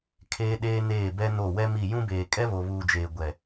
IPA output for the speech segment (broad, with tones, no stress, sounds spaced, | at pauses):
kʰ eː˦ ɗ eː˦ n eː˦˨ b ɛ˦ n o˦˨ w ɛ˦ m i˦˨ j ũ˦ b eː˨ kʼ ɛ˦ β o˨ β uː˨ d͡ʒ eː˨ ɡʷ ɛ˨